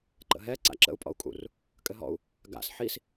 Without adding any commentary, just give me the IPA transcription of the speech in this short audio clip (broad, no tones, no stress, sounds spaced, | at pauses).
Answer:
ǃ ə̰ ɦ ɛ ǀ a̰ ǁ ə̰ u̯ pʼ ɔ̰ u̯ kʼ ṵ r | kʼ ɘ ɦ ɔ̰ u̯ | ɡ a̰ s ħ i s